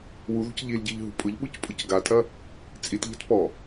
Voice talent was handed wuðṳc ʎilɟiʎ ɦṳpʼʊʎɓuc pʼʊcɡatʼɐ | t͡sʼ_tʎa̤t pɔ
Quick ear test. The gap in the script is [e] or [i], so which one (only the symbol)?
i